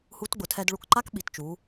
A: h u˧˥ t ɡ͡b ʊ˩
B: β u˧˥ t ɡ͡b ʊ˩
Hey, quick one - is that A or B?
A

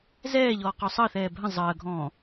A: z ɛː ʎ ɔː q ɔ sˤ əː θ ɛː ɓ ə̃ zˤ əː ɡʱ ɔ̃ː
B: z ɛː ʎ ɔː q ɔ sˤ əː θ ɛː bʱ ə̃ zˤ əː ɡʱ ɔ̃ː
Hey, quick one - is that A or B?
B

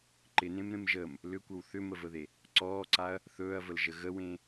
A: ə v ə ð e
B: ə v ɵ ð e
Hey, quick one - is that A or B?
A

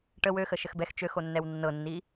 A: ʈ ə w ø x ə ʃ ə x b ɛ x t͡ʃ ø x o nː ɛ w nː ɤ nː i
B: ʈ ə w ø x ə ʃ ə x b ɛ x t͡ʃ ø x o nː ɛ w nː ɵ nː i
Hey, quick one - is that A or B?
A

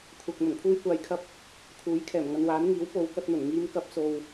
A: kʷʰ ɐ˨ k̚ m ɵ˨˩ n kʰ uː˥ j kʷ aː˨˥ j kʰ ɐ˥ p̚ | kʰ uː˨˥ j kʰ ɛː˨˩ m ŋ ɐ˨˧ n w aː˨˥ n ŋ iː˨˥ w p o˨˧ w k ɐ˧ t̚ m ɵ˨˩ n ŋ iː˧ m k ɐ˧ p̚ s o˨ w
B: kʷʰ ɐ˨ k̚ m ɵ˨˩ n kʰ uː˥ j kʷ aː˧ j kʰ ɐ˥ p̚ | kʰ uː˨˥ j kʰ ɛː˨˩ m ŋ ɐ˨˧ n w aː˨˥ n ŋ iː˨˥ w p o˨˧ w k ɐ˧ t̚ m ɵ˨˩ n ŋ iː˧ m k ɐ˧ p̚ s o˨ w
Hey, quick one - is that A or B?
B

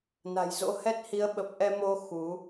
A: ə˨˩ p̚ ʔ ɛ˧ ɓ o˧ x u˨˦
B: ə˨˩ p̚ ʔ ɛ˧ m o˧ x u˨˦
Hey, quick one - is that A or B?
B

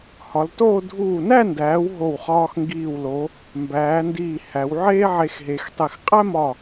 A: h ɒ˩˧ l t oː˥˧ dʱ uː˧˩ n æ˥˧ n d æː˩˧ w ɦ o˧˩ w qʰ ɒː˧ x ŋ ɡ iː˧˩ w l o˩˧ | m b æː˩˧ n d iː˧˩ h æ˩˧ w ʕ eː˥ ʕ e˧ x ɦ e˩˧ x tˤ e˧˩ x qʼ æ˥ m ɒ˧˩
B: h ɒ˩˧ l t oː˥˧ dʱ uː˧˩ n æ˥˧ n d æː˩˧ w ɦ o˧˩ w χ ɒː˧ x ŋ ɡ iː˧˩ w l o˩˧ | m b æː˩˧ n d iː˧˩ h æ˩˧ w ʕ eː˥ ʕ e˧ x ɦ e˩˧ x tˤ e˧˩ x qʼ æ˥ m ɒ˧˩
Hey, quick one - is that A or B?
B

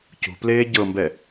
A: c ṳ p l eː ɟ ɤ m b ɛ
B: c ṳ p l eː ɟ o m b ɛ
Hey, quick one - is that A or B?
A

